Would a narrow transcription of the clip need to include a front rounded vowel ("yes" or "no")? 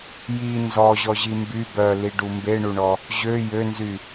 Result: yes